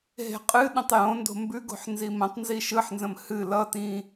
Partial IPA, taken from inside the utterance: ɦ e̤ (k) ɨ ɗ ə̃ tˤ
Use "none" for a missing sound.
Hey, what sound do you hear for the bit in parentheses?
qʼ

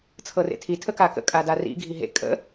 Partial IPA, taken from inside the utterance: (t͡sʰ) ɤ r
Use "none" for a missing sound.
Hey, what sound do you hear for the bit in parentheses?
t͡sʰ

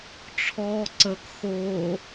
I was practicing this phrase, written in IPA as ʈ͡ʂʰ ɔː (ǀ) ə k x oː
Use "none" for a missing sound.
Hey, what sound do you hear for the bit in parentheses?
ǀ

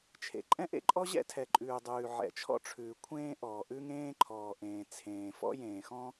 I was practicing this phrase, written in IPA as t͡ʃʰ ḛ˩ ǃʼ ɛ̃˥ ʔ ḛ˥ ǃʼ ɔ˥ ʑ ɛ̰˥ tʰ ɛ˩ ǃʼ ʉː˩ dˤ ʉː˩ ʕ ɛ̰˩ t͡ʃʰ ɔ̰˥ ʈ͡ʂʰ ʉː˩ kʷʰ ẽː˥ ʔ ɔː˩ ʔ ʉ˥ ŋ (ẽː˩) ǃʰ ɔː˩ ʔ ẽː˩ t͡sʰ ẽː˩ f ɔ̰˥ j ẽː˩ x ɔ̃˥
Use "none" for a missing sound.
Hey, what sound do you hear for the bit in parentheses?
ẽː˥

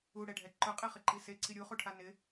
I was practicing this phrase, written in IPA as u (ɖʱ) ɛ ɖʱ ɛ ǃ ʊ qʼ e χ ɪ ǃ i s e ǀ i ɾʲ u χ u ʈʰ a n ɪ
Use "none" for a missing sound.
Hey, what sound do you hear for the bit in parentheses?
ɽ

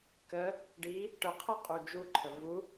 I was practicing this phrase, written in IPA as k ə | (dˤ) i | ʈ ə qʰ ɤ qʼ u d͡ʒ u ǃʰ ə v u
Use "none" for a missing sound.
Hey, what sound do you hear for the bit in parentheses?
ɖ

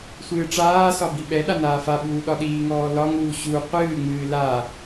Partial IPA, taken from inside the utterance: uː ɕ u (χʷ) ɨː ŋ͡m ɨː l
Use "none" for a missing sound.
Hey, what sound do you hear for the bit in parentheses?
qʷ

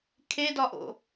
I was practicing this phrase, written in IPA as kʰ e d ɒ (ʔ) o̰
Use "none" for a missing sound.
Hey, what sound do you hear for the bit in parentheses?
ʔ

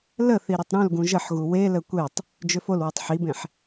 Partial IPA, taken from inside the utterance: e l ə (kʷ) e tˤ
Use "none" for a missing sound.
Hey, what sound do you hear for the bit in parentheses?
kʷ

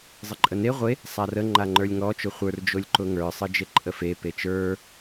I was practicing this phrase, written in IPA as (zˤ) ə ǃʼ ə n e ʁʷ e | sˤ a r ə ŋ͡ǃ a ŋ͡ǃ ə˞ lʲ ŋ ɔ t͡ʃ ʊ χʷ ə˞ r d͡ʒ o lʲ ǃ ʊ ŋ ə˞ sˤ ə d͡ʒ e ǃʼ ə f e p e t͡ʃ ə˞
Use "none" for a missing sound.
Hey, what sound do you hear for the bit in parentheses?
zˤ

